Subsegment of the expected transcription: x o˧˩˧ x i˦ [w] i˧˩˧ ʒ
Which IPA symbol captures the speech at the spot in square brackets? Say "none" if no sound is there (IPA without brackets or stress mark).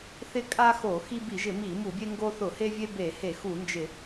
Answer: b